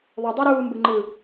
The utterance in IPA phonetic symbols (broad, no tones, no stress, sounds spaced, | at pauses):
ðˤ o dˤ ɑ ɾ uː m b ɯ ŋ͡ǃ ɯ